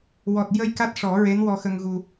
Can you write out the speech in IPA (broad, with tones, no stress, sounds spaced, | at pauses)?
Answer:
w ɔ˨˩ t̚ j ə˧ j k a˦˥ t̚ ʂ ɔ˨˩˦ ɹ e˧˥ n w ɔ˧ x ə˧ ŋ ɣ u˧